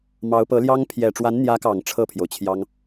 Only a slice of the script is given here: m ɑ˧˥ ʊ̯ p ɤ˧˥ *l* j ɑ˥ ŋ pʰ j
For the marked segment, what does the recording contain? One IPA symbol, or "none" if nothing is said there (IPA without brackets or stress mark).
l